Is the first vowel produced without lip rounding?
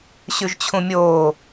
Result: no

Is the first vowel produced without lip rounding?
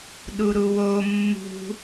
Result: no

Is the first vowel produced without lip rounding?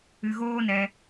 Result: yes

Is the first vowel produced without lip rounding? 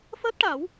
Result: yes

